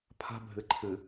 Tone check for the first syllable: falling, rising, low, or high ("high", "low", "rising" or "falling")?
high